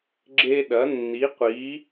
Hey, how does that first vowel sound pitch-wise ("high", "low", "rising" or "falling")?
high